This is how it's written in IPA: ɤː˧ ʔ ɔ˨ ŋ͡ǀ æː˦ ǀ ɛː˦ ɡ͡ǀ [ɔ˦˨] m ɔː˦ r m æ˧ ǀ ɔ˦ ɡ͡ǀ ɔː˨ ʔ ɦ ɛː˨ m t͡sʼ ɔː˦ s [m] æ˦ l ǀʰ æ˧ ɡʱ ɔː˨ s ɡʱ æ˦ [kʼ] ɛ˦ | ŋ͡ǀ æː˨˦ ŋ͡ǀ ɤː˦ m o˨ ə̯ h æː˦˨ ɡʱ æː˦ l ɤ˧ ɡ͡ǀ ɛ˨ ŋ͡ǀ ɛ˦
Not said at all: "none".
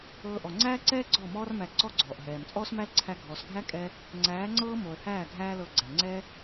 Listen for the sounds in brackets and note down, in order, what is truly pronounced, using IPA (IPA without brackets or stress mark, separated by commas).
ɔ˦˨, m, kʼ